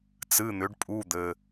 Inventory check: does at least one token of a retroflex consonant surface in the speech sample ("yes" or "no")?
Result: yes